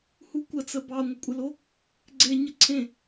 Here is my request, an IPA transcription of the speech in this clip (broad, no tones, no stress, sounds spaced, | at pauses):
h u kʷ ə t͡s ə b ɑ ŋʷ ɘ kʷʼ ɘ l o | ɡ͡ǀ e ɲ ə ǀʰ ẽ